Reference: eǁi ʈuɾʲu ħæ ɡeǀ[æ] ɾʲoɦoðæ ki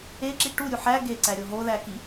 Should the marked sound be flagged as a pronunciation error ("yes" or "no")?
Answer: no